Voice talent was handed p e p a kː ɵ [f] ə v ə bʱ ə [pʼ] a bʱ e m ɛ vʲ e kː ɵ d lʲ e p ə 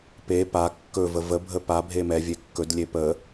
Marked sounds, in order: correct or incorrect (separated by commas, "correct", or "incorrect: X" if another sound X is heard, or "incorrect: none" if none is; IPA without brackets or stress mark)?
incorrect: v, incorrect: p